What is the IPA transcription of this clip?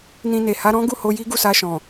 n ĩ˧ n e˨ h a˨˦ ɾ ɔ̃˦ ɡ u˦˨ h o˧ j i˦ ɡ u˦˨ s a˧ ʃ ɔ̃˨

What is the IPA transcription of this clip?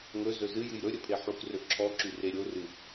ŋ ɵ z ɵ z ɨ j ɨ j ɾ ɵ ɾʲ ə pʰ e ħ u k r ɵ ǁʰ ɔ ǁ y r e ɾʲ o r ɨ

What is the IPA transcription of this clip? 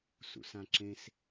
s ṵ s ã ǁ ẽ s

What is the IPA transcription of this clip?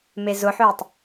m e z ʊ ħ ʏː tˤ

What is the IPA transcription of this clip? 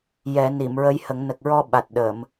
j ɛ˨˩˦ n i˨˩˨ m ɹ ə˧˥ j h ə˨˩˦ ŋ n ə˨˩ k̚ ɹ ɔ˧ ɓ a˨˩ t̚ ɗ ə˨˩˨ m

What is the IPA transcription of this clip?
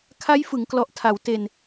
kʰ a˦˥ j f ɯ˩˦ ŋ k l ɔ˨˩ ʔ tʰ a˩˦ w t e˧ n

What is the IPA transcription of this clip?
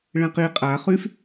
ɭ ɛ̃ q i qʼ a χ y f

